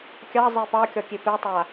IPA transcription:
kʲ ɑ zˤ e p ɑ kʲ ɒ kʲ e p e tˤ a

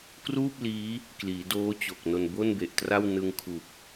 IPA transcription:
k r uː˥˩ p̚ l iː˦˥ | k l iː˩˦ d oː˦˥ t͡ɕ o˨˩ k̚ n o˧ n b o˥˩ n b e˨˩ ʔ t r a˥˩ w n ɯ˧ ŋ kʰ u˨˩ k̚

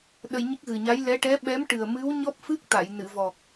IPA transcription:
ɗ ə˧ j ɲ ə˦˥ k̚ ɣ ɨ˨˩ ɲ a˧˥ j l ɛ˧˥ ʈ ɛ˧˥ ɓ ɛ˧˥ m ʈ ɨ˨˩ ə̯ m ɨ˧˥ w ɲ ɔ˦˥ p̚ f ɨ˦˥ k̚ t̪ a˨˩˨ j n ɨ˨˩˨ v ɔ˨˩ k̚

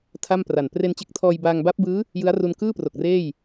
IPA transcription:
tʰ a˥˩ m p r a˨˩ n p r e˧ n t͡ɕ e˦˥ k̚ tʰ ɔː˧ j b aː˧ ŋ b a˦˥ p̚ b ɯː˦˥ | j ɯ˦˥ a̯ r u˧ n k ɯː˥˩ p r o˨˩ k̚ r eː˥˩ j

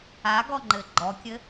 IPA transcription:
a ɡ ɔ ŋ͡ǃ ɘ ɡ͡ǃ ɔ kʲ ɘ

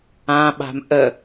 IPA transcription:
ã ɓ a̤ m ʔ ə

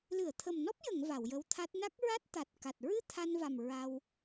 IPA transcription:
l ɨ˨˩˨ ə̯ t̪ʰ ə˨˩ m n ɔ˦˥ p̚ j ə˨˩˨ ŋ v a˨˩˨ w j ə˧˥ w t̪ʰ a˦˥ t̚ n a˦˥ k̚ ɹ a˦˥ t̚ t̪ a˨˩ t̚ k a˨˩ t̚ ɹ ɨ˧ t̪ʰ a˧ n v a˨˩ m ɹ a˧ w

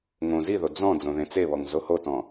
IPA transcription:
ŋ õ z i ð o d͡z ɔ̃ d͡z õ ð ẽ t͡s e β ɔ ŋ z o h o t ɔ̃

